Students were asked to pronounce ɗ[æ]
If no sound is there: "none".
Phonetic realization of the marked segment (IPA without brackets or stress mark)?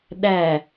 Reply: æ